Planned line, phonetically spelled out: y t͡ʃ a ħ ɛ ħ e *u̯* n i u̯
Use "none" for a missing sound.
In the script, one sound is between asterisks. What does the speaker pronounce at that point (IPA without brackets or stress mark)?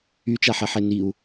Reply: none